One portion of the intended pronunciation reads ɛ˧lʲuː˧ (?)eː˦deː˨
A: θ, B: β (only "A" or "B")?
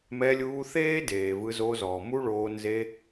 A